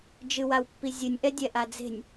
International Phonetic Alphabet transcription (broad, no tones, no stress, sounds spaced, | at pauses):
d͡ʒ ɨ w a w pː i zʲ ɨ nʲ ʔ ɛ dʲ ɛ ʔ a d͡z e̤ nʲ